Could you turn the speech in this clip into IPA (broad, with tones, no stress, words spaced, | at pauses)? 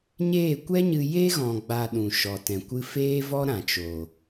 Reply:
ɲeː˦˨kʷɛ˦ɲɨ˧ je˦ɣɔ̃˨ɡ͡ba˨ ɗũ˨ʃɔ˨tɛ̃˨kʷɨ˦ feː˦vɔ˦ ɾã˨t͡ʃo˨